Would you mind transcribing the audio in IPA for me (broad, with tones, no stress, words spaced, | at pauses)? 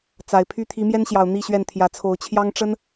t͡sa˨˩ɪ̯pʰy˥˨ t̪ʰi˨˦mjɛ˦nɕjɑ˨˩ʊ̯ n̪i˥˨ɕɥɛ˥˨n t̪ʰjä˨˦t͡sʰo˨˦ʊ̯t͡ɕʰjɑ˦ŋ ʈ͡ʂə˦n